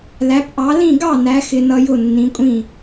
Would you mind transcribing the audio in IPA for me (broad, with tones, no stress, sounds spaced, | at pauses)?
l æ˨˦ p ʔ ɑ˨˦ l ĩ˥˨ ɡ ɑ˥˨ n æ˨˦ x ɪ˦ n ʌ˦ j ʊ˥˨ nː ĩ˨˦ kʷʼ ĩ˥˨